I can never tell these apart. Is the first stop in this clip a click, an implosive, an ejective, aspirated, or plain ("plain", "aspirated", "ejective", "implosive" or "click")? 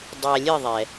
plain